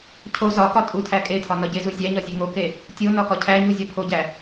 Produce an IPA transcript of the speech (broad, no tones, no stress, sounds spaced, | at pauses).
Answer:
cʰ o z ɒ k ɒ tʼ u tʰ æ kʼ e tʰ ɒ n ɒ ɟ e z u zʲ æ ɲ ɒ zʲ e ŋ o k e | tʲ o n ɒ k ɒ cʰ æ ɲ u zʲ ɒ pʰ o ɟ æ